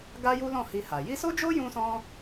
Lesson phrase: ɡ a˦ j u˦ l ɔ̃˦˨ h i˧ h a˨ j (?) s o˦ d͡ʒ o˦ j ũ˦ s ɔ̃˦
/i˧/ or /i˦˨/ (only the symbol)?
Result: i˧